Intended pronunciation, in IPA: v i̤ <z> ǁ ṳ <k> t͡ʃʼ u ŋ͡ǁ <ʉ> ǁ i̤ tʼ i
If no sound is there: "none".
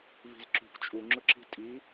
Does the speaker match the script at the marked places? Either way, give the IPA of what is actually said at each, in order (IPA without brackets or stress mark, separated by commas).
z, k, ʊ